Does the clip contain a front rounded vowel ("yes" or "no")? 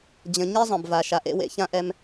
no